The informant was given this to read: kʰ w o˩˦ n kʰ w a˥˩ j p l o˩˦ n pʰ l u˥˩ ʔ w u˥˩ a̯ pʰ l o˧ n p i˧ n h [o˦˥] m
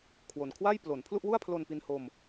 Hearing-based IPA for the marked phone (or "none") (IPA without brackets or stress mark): o˧